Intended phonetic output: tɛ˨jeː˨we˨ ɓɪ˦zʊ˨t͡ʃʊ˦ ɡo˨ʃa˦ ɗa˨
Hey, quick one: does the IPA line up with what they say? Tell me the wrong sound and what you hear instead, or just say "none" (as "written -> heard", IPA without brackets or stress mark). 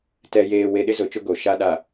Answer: ɓ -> ɗ